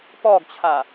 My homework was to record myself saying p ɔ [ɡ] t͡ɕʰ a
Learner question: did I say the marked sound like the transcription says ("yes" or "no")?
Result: yes